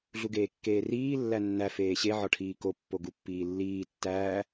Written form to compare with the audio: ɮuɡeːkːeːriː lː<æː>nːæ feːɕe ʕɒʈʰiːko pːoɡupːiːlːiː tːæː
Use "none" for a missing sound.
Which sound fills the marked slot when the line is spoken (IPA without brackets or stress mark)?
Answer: æ